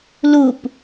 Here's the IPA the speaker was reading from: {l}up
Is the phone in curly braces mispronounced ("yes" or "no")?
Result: no